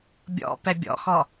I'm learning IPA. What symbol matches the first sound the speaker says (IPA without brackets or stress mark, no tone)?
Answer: bʲ